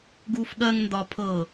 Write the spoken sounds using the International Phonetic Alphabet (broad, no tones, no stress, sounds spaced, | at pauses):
ɡ uː f ɠ ɜ ŋ n d ɒ pʰ ɤ